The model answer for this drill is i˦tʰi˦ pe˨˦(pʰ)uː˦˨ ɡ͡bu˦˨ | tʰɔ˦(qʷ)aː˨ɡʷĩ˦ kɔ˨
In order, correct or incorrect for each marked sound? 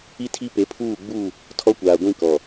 correct, incorrect: kʷ

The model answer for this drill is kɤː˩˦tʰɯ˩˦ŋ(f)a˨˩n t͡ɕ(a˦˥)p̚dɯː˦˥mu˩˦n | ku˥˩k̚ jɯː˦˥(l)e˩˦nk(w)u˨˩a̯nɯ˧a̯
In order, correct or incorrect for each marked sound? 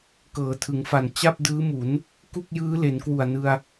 correct, incorrect: a˥˩, correct, correct

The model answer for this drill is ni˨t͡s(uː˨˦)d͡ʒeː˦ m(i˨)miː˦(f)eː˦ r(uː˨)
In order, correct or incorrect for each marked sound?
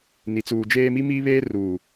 incorrect: uː˨, incorrect: i˦, incorrect: β, correct

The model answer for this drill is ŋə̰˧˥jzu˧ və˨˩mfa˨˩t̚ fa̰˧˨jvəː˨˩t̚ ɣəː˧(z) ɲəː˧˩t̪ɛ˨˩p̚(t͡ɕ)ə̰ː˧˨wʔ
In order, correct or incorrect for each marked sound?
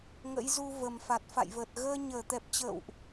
incorrect: none, correct

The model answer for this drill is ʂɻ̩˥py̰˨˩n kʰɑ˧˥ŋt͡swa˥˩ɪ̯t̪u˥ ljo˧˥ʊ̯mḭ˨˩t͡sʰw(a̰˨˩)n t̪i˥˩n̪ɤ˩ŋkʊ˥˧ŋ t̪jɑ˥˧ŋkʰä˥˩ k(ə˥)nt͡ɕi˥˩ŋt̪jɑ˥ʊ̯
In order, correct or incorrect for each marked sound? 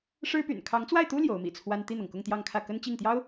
incorrect: a˥, correct

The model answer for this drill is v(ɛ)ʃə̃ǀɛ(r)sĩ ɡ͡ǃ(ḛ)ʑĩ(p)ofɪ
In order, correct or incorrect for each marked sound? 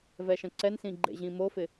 correct, incorrect: n, correct, incorrect: m

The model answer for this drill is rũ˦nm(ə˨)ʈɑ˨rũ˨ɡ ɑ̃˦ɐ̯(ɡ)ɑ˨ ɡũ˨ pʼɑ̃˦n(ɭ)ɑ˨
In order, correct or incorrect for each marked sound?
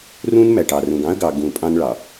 incorrect: æ˨, correct, correct

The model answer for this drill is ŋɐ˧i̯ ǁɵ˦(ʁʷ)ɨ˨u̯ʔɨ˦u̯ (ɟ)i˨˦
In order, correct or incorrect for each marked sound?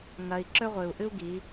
correct, incorrect: ɡ

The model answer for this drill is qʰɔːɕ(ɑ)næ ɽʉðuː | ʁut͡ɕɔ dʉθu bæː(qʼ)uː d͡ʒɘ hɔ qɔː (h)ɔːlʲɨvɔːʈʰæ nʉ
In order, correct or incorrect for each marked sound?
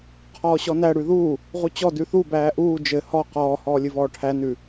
incorrect: ɔ, incorrect: ʔ, correct

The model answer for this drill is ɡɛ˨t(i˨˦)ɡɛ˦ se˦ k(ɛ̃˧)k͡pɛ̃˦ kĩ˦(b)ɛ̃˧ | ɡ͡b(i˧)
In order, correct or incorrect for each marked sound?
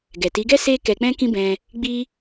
correct, incorrect: ɛ˧, correct, incorrect: i˦

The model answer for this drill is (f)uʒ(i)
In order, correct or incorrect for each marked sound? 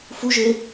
correct, incorrect: e

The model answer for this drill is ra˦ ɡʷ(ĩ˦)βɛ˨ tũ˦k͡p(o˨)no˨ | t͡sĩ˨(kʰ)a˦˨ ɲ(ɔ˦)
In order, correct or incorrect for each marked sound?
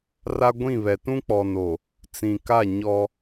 incorrect: ĩ˦˨, incorrect: ɔ˨, incorrect: k, correct

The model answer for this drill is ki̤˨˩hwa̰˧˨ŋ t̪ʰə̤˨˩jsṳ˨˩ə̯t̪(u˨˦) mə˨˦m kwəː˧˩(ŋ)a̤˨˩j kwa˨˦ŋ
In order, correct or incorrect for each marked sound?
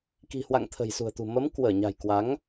incorrect: ṳ˨˩, incorrect: ɲ

